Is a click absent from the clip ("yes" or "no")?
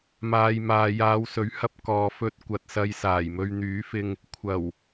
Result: yes